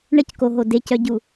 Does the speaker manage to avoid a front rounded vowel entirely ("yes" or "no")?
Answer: no